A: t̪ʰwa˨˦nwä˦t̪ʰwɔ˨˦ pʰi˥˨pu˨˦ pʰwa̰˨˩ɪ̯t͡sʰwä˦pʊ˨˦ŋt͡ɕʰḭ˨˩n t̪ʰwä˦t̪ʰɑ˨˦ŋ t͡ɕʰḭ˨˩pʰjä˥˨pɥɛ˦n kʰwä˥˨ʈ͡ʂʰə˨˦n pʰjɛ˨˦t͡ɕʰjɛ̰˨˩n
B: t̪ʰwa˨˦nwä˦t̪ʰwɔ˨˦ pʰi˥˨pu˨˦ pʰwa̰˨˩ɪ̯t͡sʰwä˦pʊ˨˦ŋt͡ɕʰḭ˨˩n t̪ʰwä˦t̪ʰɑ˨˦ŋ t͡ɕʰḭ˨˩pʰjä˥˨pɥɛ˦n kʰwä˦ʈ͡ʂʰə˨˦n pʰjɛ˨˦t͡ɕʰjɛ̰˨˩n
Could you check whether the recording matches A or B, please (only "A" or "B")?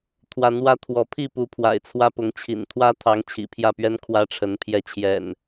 B